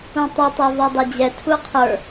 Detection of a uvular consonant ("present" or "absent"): present